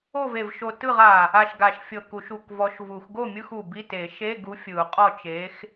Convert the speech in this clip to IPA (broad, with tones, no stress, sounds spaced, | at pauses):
o˥˨ v e˧˩ v ʃ o˧˩ t ɯ˥˨ ʁ a˧˩ | a˧˩ ʃ ɡ a˨˩˦ ʃ fʲ ɤ˧˩ k u˨˩˦ ʃ u˧˩ k v ɔ˨˥ ʃ v u˨˩˦ x ɡ o˥˨ mʲ ɯ˧˥˧ x u˧˩ b i˧˥˧ t e˨˩˦ ʃ e˧˥˧ ɡ u˨˥ fʲ ɯ˨˩˦ u̯ qʼ ɔ˥˨ t͡ʃ e˨˥ x